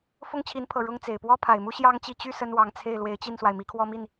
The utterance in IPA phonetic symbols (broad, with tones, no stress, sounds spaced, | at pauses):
f ʊ˥ ŋ t͡ɕʰ i˧˥ n pʰ ɤ˨˩ ɻ ʊ˥ ŋ t͡s e˨˩ ɪ̯ p w ɔ˥ pʰ a˨˩ ɪ̯ m u˥ ɕ j ɑ˥ ŋ t͡ɕ i˥˧ t͡ɕ y˥˩ s ə˥ n w ɑ˧˥ ŋ t͡sʰ e˥˩ ɪ̯ l w e˧˥ ɪ̯ t͡ɕ i˥˩ n s w a˩ ɪ̯ m i˧˥ kʰ w ɔ˥ m i˥˩ n